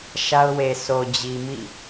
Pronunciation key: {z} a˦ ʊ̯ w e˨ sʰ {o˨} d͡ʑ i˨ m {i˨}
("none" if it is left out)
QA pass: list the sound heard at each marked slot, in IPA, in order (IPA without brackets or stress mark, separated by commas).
ʃ, o˨, ḭ˦˨